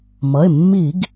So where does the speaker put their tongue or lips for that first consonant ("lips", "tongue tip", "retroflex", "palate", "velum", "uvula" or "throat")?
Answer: lips